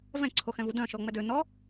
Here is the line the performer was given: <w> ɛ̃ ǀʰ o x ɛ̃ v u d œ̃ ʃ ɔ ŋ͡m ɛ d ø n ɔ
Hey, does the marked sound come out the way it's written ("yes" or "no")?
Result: no